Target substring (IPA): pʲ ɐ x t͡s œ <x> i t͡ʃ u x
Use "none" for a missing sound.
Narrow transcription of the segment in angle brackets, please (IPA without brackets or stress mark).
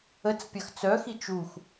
x